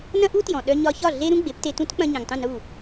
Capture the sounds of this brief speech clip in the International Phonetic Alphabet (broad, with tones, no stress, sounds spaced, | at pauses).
n ɐ̃˥ ʔ u˥ t j ɔ̃˩ ɗ œ˧ ɲ ɒ˧ ç ɒ˥˩ ɮ e˥ ɾ ũ˥ ɡ͡b e˩˥ p t e˧ t ũ˥ t k͡p ɐ̃˧ ɲ ɐ̃˩ ŋ tˤ ũ˥˩ n u˥˩